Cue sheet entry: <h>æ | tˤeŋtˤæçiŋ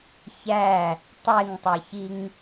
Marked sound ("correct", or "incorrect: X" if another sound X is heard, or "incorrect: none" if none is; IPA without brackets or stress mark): incorrect: ç